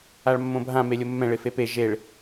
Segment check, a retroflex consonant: present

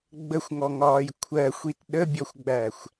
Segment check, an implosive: present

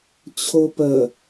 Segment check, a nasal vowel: absent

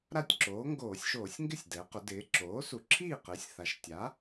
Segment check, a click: present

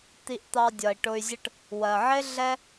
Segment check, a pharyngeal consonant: present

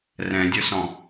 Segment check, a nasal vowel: present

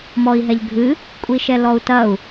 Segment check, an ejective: present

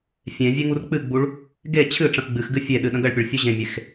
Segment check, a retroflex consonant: present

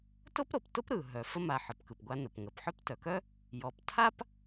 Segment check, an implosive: absent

